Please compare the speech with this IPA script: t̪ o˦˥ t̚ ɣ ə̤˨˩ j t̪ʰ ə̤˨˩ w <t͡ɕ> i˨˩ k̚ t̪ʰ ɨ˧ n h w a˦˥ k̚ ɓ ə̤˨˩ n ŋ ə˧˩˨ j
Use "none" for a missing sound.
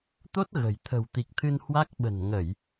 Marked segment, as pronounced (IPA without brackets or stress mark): t̪